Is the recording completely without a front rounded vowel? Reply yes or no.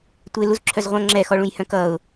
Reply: no